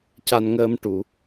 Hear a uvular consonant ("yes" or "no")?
no